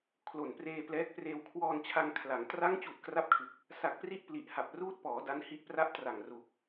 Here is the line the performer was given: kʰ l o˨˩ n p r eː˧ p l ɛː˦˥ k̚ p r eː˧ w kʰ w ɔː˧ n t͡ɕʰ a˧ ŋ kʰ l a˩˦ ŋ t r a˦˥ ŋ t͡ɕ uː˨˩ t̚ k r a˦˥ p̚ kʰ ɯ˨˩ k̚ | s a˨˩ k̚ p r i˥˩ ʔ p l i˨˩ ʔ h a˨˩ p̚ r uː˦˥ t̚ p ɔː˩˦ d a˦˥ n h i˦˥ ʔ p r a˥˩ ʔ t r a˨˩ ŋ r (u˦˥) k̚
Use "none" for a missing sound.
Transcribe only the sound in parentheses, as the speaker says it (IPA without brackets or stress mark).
u˨˩